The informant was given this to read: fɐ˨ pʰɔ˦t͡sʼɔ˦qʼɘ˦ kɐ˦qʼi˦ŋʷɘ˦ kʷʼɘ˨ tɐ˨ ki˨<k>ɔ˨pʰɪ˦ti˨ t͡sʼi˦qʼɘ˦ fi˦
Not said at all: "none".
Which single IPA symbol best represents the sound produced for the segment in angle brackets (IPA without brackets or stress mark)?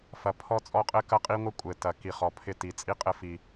χ